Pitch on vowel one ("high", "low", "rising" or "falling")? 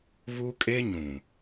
high